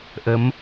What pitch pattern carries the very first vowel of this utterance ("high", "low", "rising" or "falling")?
rising